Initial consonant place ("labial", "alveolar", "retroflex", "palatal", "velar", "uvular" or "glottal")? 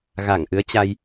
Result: velar